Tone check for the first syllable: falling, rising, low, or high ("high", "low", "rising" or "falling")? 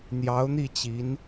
rising